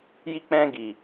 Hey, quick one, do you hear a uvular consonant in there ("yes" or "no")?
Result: no